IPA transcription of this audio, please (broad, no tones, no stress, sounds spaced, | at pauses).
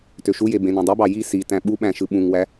t ø ʃ u j e b ẽ n ẽ dˤ i b ɑ j i s i t æ̃ ɓ u ɓ æ̃ ʃ ɯ ɓ ũ ŋ w æ